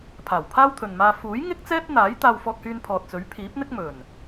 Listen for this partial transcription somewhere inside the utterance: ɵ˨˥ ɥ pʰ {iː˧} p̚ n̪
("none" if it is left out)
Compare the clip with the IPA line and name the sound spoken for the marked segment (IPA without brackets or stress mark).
iː˨˥